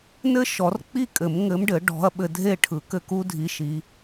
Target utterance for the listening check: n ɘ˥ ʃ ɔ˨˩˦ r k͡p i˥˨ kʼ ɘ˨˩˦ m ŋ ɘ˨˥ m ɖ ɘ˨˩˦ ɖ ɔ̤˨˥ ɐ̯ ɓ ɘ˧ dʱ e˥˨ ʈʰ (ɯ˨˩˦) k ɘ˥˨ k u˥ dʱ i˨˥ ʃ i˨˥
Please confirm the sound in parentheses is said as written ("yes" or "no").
yes